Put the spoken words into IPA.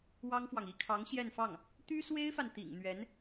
w ɑ˥ ŋ f w ɑ˨ ŋ i˥ kʰ ɑ˧˥ ŋ ɕ j ɛ˥˧ n f ɑ˥˩ ŋ | t̪ y˥ s w e˥ ɪ̯ f a˨ n t̪ ḭ˨˩ ŋ n̪ ɥ ɛ˧˥ n

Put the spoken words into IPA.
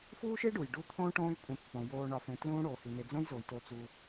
f uː˥ ʃ e˥ ɖ u˩ j ɖ u˦ t̪ʰ õː˥ ʈ õː˦ j kʷʼ ẽ˨ pː õ˩ j oː˨ ɳ ɒ˨ f ẽ˨ t l ũː˦ ɽ oː˩ h i˩ n e˨ d͡z õ˦ j z o˩ j t o˨ t͡s uː˨

